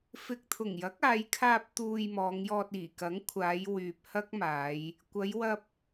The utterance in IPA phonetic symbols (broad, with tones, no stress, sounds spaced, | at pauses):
f ɪ˧ k̚ t̪ʰ ʊ˨˩ ŋ j ɐ˨˥ k̚ aː˨˧ j kʰ aː˧ p̚ t̪ uː˨ j m ɔː˨˧ ŋ j ɔː˧ t̚ iː˨˩ k ɐ˨˥ ŋ kʷʰ aː˨˧ j w yː˨ p̚ h ɐ˥ k̚ m aː˨˧ j | kʷ ɐ˨˧ j w ɐ˧ p̚